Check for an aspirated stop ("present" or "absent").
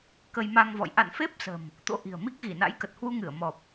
absent